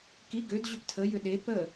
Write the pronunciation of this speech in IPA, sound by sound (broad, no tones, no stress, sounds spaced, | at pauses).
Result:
k i ɡ ø d ʑ ʏ p tʰ ə j ʏ ɗ e p ə